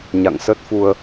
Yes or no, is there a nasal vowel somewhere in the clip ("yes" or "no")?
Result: no